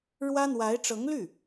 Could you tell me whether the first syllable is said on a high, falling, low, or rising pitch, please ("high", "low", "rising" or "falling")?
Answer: high